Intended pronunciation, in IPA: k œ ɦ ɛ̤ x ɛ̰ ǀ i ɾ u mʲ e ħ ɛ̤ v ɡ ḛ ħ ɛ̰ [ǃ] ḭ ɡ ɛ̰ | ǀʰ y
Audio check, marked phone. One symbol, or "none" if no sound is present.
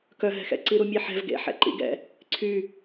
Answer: ǃ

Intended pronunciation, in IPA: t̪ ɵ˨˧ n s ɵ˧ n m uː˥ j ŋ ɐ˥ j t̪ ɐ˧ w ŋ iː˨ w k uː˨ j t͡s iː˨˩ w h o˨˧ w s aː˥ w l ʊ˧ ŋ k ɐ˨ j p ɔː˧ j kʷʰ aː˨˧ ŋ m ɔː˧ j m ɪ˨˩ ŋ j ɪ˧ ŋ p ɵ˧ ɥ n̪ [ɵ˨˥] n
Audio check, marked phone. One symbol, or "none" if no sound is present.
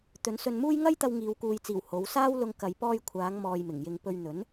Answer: ɵ˨˥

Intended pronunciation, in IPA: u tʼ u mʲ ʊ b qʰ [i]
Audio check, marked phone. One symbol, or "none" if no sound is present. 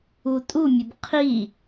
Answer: i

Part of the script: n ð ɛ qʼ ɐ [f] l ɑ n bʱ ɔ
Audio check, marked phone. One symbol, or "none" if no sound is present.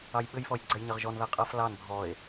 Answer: f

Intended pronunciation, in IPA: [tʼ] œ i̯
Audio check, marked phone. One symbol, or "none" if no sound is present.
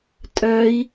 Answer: tʼ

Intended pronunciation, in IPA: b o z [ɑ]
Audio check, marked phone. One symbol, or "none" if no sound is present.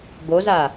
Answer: a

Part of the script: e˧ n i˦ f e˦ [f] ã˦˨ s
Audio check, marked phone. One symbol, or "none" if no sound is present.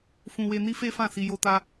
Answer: f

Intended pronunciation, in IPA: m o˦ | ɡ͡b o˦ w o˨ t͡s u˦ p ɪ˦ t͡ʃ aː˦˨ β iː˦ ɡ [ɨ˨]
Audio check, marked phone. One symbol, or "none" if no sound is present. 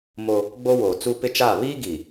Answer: i˨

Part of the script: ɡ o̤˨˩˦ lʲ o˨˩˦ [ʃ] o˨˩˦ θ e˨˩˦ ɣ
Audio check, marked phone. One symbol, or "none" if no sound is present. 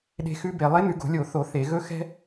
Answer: θ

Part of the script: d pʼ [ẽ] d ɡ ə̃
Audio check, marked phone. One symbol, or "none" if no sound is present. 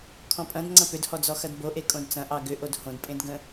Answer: ẽ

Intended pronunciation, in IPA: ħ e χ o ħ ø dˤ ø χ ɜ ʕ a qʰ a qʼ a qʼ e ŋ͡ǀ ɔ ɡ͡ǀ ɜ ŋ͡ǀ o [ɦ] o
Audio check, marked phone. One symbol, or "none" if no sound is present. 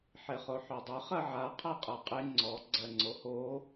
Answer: h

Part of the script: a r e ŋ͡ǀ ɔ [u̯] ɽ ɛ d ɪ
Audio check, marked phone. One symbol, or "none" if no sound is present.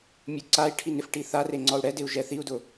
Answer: u̯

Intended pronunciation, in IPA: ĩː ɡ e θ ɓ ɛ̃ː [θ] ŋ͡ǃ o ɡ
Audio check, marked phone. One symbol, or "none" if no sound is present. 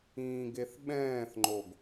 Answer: θ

